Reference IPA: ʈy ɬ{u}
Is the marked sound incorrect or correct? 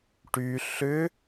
incorrect